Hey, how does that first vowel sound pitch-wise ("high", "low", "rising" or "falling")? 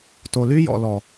low